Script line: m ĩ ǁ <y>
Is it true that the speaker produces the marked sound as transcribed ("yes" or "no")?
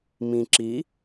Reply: no